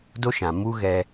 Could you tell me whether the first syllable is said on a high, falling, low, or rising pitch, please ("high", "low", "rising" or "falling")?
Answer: high